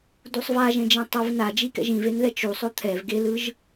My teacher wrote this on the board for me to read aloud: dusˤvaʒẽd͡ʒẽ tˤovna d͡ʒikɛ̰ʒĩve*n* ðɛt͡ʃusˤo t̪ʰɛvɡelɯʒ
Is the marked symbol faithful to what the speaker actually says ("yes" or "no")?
yes